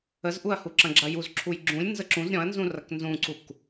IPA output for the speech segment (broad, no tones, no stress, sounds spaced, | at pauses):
ə z ʔ u ɐ̯ h u ǁ ɐ̃ ɡ͡ǁ ɐ j u z ǁʰ u j ɡ͡ǁ ũ lʲ n z ə ǁ ũ z ɾʲ ɔ̃ ɐ̯ n z ũ r ɐ k n z ũ ǀ u k